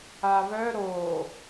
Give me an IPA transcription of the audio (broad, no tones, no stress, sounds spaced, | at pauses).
a β œ ɾ o